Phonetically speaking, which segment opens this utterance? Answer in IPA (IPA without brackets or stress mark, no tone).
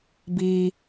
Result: b